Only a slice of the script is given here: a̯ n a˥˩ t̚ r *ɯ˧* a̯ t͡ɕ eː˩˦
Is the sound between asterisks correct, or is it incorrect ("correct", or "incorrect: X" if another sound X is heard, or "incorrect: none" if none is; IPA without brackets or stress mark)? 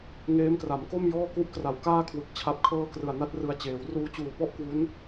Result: correct